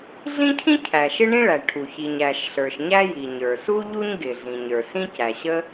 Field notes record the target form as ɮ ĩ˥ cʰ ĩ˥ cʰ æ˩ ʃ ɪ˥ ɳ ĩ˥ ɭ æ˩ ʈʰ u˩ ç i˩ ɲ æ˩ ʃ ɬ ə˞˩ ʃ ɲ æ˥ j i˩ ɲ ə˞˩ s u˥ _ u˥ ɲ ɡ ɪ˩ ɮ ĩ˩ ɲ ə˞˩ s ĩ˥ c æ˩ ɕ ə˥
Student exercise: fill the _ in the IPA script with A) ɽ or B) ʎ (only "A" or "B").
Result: B